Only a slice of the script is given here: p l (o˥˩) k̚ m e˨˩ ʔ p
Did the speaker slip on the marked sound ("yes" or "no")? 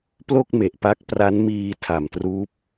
no